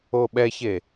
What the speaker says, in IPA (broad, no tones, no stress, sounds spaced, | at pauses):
o ɓ ɛ ç e